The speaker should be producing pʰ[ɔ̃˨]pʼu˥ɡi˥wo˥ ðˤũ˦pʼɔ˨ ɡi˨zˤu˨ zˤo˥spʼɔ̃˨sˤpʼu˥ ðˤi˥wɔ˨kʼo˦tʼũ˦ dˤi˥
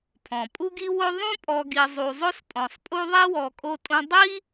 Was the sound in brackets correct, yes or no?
no